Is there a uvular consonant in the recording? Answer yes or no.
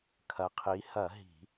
yes